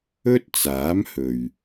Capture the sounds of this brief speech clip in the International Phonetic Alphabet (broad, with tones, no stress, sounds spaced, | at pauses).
ɵ˥ t̚ t͡s aː˨˥ m h ɵ˨ ɥ